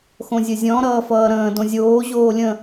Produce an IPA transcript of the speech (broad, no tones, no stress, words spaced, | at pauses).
xõzʲɘzʲɔ̃ ɾʌːfʌːɾə̃ː dõzʲoː ʑoːlʲə̃